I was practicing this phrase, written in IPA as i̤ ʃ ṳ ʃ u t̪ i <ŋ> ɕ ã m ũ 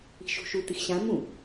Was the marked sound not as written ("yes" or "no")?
yes